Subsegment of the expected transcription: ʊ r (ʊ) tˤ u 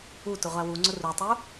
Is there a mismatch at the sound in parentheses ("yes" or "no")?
yes